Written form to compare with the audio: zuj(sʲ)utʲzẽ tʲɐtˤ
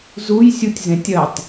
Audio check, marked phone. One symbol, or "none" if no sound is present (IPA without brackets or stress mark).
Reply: sʲ